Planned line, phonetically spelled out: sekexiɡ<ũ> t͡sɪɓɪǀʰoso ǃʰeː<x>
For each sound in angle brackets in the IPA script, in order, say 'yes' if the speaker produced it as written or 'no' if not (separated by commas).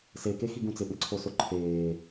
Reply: yes, no